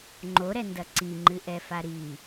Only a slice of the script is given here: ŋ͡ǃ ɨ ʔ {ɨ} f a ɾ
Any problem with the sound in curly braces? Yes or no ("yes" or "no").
yes